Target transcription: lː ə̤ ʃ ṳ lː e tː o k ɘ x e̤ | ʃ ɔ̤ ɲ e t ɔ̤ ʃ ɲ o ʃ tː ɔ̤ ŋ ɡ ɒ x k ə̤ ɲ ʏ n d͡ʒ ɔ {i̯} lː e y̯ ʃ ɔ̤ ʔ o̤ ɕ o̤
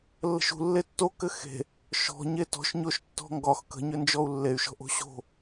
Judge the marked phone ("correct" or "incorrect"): incorrect